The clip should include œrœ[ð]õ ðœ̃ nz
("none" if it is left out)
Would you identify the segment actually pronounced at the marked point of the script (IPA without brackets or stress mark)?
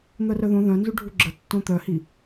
ð